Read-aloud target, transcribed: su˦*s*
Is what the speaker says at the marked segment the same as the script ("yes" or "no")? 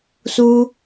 no